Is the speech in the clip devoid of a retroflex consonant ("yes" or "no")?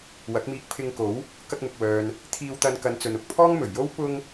yes